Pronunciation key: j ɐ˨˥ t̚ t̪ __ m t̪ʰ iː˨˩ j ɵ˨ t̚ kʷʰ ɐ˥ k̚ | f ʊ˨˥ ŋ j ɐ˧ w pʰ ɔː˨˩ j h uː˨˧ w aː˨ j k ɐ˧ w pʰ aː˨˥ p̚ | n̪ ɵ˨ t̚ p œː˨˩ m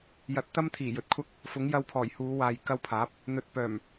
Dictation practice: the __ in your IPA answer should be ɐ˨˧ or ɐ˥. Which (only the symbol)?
ɐ˥